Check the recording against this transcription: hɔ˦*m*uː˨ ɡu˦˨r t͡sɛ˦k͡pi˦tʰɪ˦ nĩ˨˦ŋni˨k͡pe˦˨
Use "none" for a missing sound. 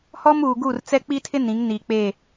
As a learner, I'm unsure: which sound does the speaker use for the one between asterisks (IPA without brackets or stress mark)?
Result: m